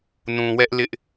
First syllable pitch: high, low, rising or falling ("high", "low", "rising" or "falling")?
low